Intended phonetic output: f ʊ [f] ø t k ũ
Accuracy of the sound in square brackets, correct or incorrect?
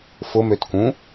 incorrect